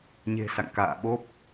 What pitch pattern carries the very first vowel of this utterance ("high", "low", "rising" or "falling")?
low